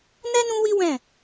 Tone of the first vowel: high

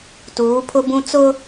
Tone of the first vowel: rising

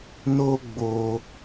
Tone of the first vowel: high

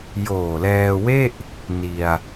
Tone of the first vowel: low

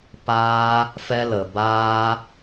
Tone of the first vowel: high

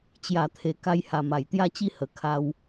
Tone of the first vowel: low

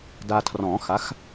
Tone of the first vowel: low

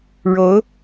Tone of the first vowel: rising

